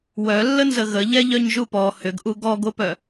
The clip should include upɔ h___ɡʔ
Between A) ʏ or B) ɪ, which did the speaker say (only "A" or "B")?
A